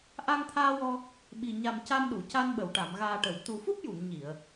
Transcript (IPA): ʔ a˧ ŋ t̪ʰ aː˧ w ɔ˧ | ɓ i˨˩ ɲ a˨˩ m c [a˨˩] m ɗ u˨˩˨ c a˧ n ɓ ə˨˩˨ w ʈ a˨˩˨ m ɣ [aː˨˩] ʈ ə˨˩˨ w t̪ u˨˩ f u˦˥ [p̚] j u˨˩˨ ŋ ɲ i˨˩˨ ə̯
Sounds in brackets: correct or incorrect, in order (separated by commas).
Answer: incorrect, correct, correct